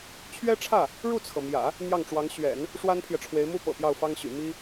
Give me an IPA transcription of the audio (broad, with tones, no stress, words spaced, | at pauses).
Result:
t͡ɕʰɥɛ˥ʈ͡ʂʰä˥˩ | ɻu˥˩t͡sʰɤ˩mjä̰˨˩˦ | n̪jɑ˥˩ŋʈ͡ʂwɑ˧˥ŋ ɕɥɛ̰˨˩˦n | ʂwa˥npʰjɛ˨ʈ͡ʂʰwe˧˥ɪ̯mu˥ pɤ̰˨˩pjɑ˥˩ʊ̯fɑ˥ŋɕy̰˨˩ mi˥